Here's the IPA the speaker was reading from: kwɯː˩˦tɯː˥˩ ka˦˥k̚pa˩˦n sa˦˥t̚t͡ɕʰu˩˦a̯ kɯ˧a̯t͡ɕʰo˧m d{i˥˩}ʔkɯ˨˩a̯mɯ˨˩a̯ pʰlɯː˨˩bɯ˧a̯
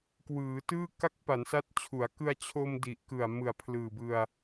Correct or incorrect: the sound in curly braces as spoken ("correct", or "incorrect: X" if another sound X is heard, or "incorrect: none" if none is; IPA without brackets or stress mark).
incorrect: i˨˩